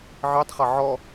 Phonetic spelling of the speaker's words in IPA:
ʕ i tˤ χ ʌ ʕ ɔ

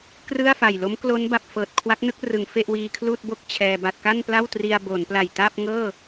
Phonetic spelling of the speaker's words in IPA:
k r ɯ˥˩ a̯ f a˨˩ j l o˦˥ m k l o˦˥ n b a˨˩ p̚ f ɤː˨˩ t̚ kʰ w a˦˥ k̚ n ɯ˥˩ k̚ r ɯ˩˦ ŋ f e˥˩ ʔ w iː˧ kʰ l uː˥˩ t̚ b o˥˩ k̚ t͡ɕʰ ɛː˧ b a˥˩ t̚ k a˥˩ n p l a˥˩ w t r i˧ a̯ b o˩˦ n p l a˨˩ j t a˥˩ p̚ ŋ ɤː˥˩

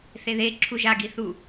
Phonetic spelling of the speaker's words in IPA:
θ e ð e ǁʰ u ʒ a ɡ i θ u

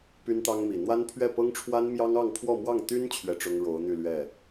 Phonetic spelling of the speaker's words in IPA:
p y˥ n t̪ ɑ˥ ŋ m i˨˩ n̪ w a˥ n pʰ ɥ ɛ˥˩ p ɤ˥ ŋ ʈ͡ʂʰ w a˥ n m j ɑ˥ ŋ ɑ˥˧ ŋ pʰ w ɔ˥˧ m w ɑ˥˩ ŋ t̪ y˥ n t͡ɕʰ ɥ ɛ˥˩ ʈ͡ʂ ʊ˥ ŋ ɻ o˧˥ ʊ̯ n̪ y˥˧ l ɥ ɛ˥˩

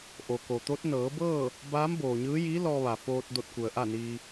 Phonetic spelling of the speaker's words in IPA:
ʔ o˩ k o˩ t̪ o˧˥ t̚ n ɤː˩˧ b ɤː˥˨ | b aː˧˥ m b oː˩ ɲ ɯː˧˥ j iː˧˥ l ɔː˧ ʋ a˩ f oː˧ t̚ d o˧ t̚ k u˩ ə̯ ʔ a˥˨ n iː˧

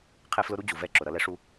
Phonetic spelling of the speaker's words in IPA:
qʰ ɛ˦ f l ʊ˦ ɾ u˦ d͡ʑ u˨ v ɛ˦˨ ǁ ʊ˨ ɾ ʌ˦ l ɛ˦ ʂ u˦

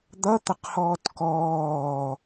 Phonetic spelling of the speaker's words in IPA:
d̪ ʌ t̪ ɐ q h ɔː t k ɔː

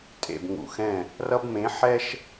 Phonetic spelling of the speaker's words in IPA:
tʼ ḛ˨ b ŋ ṵ˨ x ɛ̃˦˨ | r ʌ˦ b m ẽ˨˦ ħ ɛ˦ ʃ

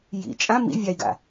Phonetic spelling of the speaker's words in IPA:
j ḭ t͡ʃʼ ã m ḭ vʲ a i̯ ɡ a̰

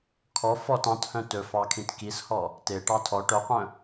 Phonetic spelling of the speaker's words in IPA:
kʰ ɔ f ɔ t ɑ̃ t h œ̃ t ɵ f ɑ kʰ ĩ t k i s h ɔ | t e ʈ ɑ tʰ ɔ ʈ œ qʷ œ̃

